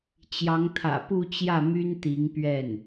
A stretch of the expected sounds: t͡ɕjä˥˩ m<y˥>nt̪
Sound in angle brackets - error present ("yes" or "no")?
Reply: no